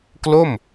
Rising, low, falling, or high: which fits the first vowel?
falling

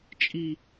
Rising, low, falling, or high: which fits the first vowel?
high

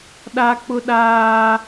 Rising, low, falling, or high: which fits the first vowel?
high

